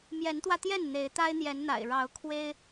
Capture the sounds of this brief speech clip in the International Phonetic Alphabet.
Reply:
m j ɛ˨˦ n t̪ w ä˧ t̪ j ɛ˥˨ n n̪ e˨˦ ɪ̯ t̪ a˦ ɪ̯ n̪ j ɛ˨˦ n n̪ a̰˨˩ ɪ̯ ɻ ɑ˨˦ ʊ̯ kʰ w e˦ ɪ̯

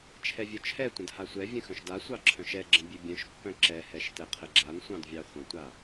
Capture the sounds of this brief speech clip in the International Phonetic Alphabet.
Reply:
t͡ʃʰ ɛ vʲ œ t͡ʃʰ ɛ tʷ ə̃ d h a sʷ ɛ vʲ ə̃ x œ̃ ʃ d a sʷ ɑ ǁʰ œ̃ ʃ ɛ ɡ͡ǁ ə̃ bʲ ʉ bʲ œ̃ ʃ pː œ̃ ǁ ɛ h ɛ ʃ t ɛ qʰ ə ɡ͡ǁ a n sʷ ɑ̃ d vʲ ɑ χʷ ə̃ tʷ a

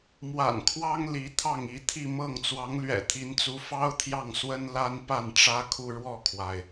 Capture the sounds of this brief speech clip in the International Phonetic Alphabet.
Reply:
m w a̰˨˩ n kʰ w ɑ˥ ŋ l i˧˥ t̪ʰ ɑ˥˩ ŋ i˧˥ t̪ʰ i˥˧ m ɤ˥˩ ŋ t͡s w ɑ˧˥ ŋ l ɥ ɛ̰˨˩ t̪ʰ i˧˥ n t͡s u˧˥ f ɑ˥ ʊ̯ t̪ʰ j ɑ˥˩ ŋ s w ə˥ n l a˥ n p a˥˩ n ʈ͡ʂ ä˥ kʰ u˥˧ ɻ w ɔ˥˩ kʰ w a˩ ɪ̯

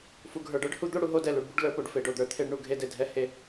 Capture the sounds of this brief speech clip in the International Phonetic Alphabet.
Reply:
f u˨ ɡʱ ə˞˨ ɖ ə˞˦ ɖ h u˦ d̪ o˦ ɽ u˨ ɦ o˦ d ɛ˨ l u˨ ɖ b u˦ ɖ l ə˞˦ p o˨ ɖ f e˨ ɖ o˨ d̪ ə˞˨ t̪ʰ e˦ ɖ ɳ u˨ ɡʱ e˦ d e˨ dʱ ɛ˦ h e˦

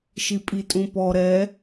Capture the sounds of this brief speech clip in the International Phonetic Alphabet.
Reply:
ʃ i pʼ i tʼ ũ p ɔ ɾ ɛ

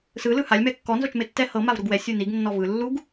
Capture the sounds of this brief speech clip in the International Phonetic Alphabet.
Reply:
s ɯ l ɯ h a lʲ m ɛ kː ɔ n z o t͡ʃ m e tː ɛ h ɤ m a v ɾ u ɡ w ɛ sʲ u n i ɡ nː ɔ v ɯ lː u ɡ

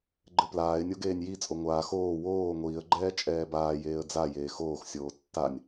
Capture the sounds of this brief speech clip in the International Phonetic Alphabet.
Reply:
ɡ͡ǃ ɘ p l aː ɪ̯ nʲ o ɡ eː nʲ j i t͡sʼ o ŋʷ aː x oː w oː ŋʷ iː ə̯ ɡ͡ǃ ɛː t͡ʃʼ ɛː b aː j eː ə̯ d͡z a j eː x oː x sʲ oː tː a nʲ

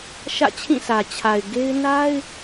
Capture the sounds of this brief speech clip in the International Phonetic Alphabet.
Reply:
ʃ ä̰˦˨ t͡ɕʰ ĩ˦˨ s ä˨ t͡ɕʰ a˨ ɪ̯ ɡ e˦ ɪ̯ n a˦ ɪ̯

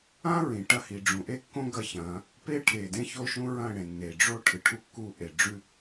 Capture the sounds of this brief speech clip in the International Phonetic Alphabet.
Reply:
ã˦ ɹ ĩ˨ ʈ ɐ˦ h i˨ ɖ͡ʐ ũ˨ ʔ e˦ kː õ˦ ɡ ɐ˦ ç ɐ̃ː˨˦ | p eː˦ ʈʰ eː˨ d ẽ˦ ç o˦ ʃ ũ˦ ɹ ɐ̃ː˦˨ ɽ ẽ˨ nː e˨ ɖ͡ʐ o˦ ʈʰ ɨ˨ ʈʰ u˦ kː u˦ ʔ e˨ ɖ͡ʐ ʉ˦

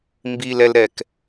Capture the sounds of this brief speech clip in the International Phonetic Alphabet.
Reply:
m b i l ɛ l ɾ ɛ k

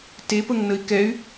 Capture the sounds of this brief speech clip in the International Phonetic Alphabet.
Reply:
t e p ə ŋ n ə i̯ k ɛ y̯

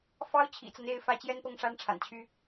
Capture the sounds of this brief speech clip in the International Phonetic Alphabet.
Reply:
f ɑ˥ ʊ̯ t͡ɕʰ ḭ˨˩ t͡s a˦ n e˧˥ ɪ̯ f ä˧˥ t͡ɕ j ɛ˥ n p ɤ˥˩ ŋ ʂ a˥ n ʈ͡ʂʰ a̰˨˩ n t͡ɕʰ y˥

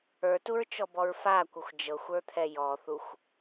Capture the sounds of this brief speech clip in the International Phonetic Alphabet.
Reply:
ə˞ t u ɹ t͡ʃ ɔ b ɔ ɹ f a kʷ ə xʷ d͡ʒ ɤ xʷ ə˞ t̪ʰ ɛ j ɔ θ u xʷ

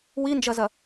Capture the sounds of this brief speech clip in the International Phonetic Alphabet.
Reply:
w i n d͡ʒ ɐ z ɐ

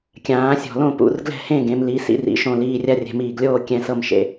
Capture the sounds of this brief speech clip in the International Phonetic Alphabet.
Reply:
kʲ ãː˩˧ sʲ ɔ̤˨˩ l õ˦˨ p ṵ˩˧ r ɡ l ɛ̤˦˨ h ẽ˦˨ ɡ ẽ˩˧ m l iː˩˧ s ḭ˦˨ r ḭ˩˧ ʃ õ˨˩ l iː˨˩ rʲ a˦˨ rʲ ɛ̤˨˩ m iː˨˩ ɡ lʲ oː˦˨ kʲ ɛ̃˩˧ s ɤ˦˨ m ʃ ḛ˩˧

